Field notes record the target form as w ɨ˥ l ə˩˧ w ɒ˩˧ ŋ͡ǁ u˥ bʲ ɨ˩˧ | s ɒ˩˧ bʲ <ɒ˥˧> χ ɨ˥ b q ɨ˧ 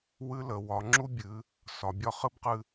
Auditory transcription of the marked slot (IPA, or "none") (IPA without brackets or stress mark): ɒ˥˧